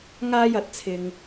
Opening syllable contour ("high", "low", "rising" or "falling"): high